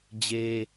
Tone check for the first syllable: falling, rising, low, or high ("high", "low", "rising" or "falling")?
high